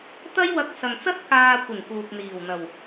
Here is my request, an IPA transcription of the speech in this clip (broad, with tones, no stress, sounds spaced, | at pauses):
t̪ ɐ˥ j w ɐ˧ k̚ s ɐ˨ ŋ t͡s ɐ˥ t̚ k aː˧ kʷ ɪ˨˩ ŋ k uː˨ k̚ n̪ iː˨˩ w n̪ ɐ˨˩ w